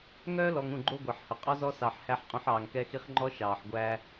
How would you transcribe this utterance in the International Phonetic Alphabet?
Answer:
ŋœː˦lɔ˨ŋ ũ˦˨ɡ͡ǃo˦ɡʷɑ˨ħhɵ˨ qʼɔ˦zɔ˦sɑ˨ħ hæ˨ħqʼũ˨ħ ɑː˨ŋkɛ˦xi˦χ ŋ͡ǃɔ˦ʃɑː˨ħɡʷæː˦

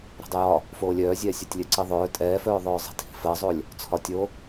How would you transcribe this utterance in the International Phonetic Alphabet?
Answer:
ɾɛ̤dˤijɒ | foːlʲœːzʲɛː sʲɜtʲlʲœǀiðˤœː tʼɛːfœːðˤœːzˤi̤ tʰi̤fɜzˤolʲ | t͡sʰɒtʲo

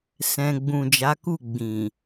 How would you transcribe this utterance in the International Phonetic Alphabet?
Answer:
sɛ̃˧ ɡ͡bũ˨d͡ʒa˨˦ku˦˨ ɡ͡bĩ˨

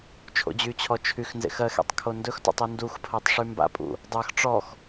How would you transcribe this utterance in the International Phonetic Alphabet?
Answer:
t͡ʃʰo̰d͡ʑyt͡ɕʰɔ t͡ʃʰyxnzḛx ɜxḛtˤ kʰondɵxtɔ̰tˤ unduxpʰɜtˤ ʂymba̰pʼṵ | dˤɜx ʈ͡ʂɔx

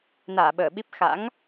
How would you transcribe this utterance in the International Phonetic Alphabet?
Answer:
naː˧˩ɓəː˧˩ɓi˦˥p̚ xa̰˧˥ŋ

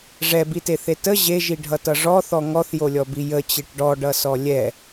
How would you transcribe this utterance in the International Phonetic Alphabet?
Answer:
ʐɛbiteθe tə ʑeʒiɖʱʌtʌ ʐɔθɔ ŋɔθjolʲɔbi jət͡ɕeʈ ɖɔɖʌsɔ lʲɛ

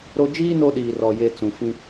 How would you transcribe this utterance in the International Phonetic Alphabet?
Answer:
ɾo˦ d͡ʒiː˦ no˦ɗiː˨rɔ˨ je˨ t͡sũ˨fĩ˦

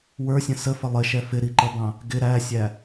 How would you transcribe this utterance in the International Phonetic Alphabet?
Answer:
wə˞sʲə̃ səfə lˠɪʃɛ fɪɾiǃʌbɑ̃ | ɡɪ ɾæsʲæ

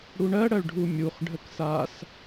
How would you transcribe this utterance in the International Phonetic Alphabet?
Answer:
ɽuɳɜɽɜɭ ɖʱumʲuχɖʱək sas

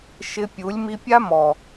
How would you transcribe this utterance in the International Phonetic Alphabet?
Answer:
ʃɪ˧pʲu˨˦lʲ mi˧pʲa˦mɔ˨

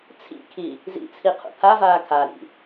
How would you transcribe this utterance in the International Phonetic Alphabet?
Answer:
t͡sʰḭkʰi | zḭt͡sʰi qʰṵpʰavaː kʰaɾḭ

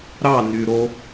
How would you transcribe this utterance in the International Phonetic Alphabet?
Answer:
ɾɑ ny ɾo

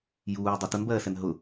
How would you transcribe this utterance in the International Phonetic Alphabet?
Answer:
juː dˤɜtʊnbɜːsɛn ɦʊ

